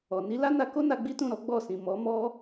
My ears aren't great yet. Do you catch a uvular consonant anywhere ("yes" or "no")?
no